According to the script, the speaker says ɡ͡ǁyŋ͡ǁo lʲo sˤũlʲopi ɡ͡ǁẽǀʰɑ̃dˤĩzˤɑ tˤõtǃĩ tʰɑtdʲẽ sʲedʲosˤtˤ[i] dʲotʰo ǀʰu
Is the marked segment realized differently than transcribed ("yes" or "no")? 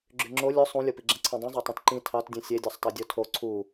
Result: yes